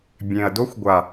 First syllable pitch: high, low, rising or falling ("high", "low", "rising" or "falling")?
low